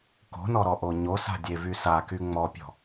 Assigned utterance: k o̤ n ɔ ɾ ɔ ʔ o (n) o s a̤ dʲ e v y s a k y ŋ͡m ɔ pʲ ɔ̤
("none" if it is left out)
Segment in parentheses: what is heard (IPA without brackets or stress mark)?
ɲ